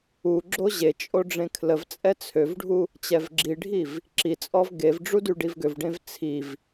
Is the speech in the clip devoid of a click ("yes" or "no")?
no